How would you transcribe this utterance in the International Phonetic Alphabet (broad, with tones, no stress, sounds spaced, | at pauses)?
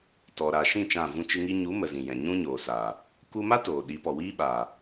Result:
t ɔ˨ ɾ aː˨ ʃ ĩ˦˨ t͡ʃ ã˦˨ v ũ˦ t͡ʃ ɨ˦ ŋ i˧ ɲ u˨˦ m ə˨ z ĩ˨ j ɛ̃˨ ɲ ũ˦ ɲ oː˨ s a˨ | k u˧ m a˦ t oː˨ ɗ i˨˦ p ɔ˨ w iː˦ ɓ a˨